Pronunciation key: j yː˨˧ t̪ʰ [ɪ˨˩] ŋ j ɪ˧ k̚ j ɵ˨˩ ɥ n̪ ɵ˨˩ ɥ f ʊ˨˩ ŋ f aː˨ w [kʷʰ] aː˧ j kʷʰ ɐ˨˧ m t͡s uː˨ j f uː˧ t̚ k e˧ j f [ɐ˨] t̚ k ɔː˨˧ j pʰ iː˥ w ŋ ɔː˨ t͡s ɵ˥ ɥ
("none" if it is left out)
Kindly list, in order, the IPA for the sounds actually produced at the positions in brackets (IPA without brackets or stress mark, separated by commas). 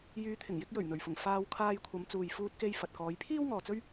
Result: ɪ˨˩, kʰ, ɐ˨